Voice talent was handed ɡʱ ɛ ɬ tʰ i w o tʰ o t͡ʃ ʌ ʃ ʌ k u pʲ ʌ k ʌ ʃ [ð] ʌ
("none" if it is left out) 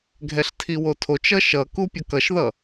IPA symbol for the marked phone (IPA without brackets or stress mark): ð